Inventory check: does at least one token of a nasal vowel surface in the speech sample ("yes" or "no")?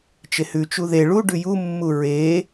no